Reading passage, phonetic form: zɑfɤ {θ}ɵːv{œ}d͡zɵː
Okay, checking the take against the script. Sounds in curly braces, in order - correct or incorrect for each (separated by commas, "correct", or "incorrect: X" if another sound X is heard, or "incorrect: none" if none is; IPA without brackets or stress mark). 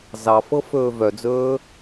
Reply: incorrect: f, correct